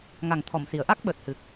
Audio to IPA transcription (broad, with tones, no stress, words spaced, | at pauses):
ŋa˨˩ŋt̪ʰɔ˨˩˨msi˨˩˨ə̯ ʔa˦˥k̚ ɓəː˨˩t̚hɨ˨˩k̚